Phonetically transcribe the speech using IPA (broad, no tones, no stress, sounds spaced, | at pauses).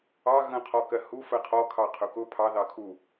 ɑ ɣ ə̃ qʰ ɔ k ɜ h u f ɜ qʰ ɔ kʰ ɑ qʰ ʊ k ʊ pʰ ɑ ð ɑ kʰ u